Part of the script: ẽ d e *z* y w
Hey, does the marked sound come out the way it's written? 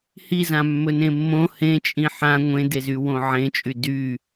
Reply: yes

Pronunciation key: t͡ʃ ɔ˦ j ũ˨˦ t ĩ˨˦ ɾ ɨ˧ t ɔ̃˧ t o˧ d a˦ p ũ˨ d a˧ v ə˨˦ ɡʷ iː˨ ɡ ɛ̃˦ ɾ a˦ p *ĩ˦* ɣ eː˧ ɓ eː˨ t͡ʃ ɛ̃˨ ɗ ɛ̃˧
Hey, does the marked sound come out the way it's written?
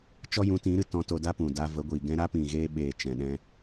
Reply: no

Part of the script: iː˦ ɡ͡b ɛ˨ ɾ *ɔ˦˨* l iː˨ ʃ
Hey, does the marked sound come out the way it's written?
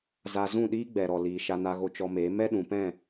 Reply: no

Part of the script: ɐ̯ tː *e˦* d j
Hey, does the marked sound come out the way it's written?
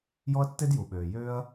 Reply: yes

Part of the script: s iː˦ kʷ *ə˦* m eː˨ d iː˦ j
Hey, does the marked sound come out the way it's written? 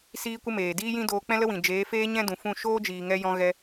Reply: yes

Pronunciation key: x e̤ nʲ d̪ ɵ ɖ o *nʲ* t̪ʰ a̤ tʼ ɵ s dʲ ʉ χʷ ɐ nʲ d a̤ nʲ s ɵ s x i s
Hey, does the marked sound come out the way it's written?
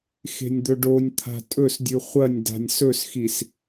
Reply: yes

